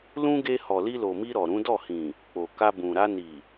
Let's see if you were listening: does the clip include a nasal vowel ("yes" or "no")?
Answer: yes